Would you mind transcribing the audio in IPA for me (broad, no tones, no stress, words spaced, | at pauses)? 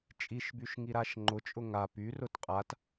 t͡ʃʼiʃbyʃŋiɾaʃ ŋ͡ǃʊt͡ʃʼʊ ŋa pyrʊt qʼat